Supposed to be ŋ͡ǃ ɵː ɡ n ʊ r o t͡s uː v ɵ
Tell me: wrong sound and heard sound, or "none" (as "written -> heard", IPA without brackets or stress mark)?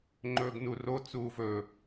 ʊ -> u